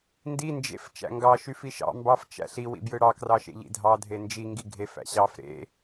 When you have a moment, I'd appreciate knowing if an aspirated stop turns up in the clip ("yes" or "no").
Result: no